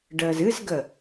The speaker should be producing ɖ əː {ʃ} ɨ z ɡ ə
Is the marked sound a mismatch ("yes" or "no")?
yes